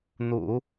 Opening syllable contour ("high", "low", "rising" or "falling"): low